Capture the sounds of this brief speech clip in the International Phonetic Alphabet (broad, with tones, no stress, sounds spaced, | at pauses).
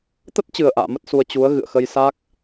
t̪ ə˦˥ t̚ t͡ɕ ɨ˨˩ ə̯ ʔ a̰ː˧˨ m ə˦˥ t̚ s u˧ ə̯ t͡ɕ u˨˦ ə̯ ɣ ɨ̰˧˨ ə̯ x ə˧ j s a˦˥ k̚